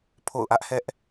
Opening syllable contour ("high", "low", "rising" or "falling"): falling